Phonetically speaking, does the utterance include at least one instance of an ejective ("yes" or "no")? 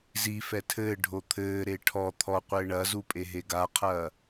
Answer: yes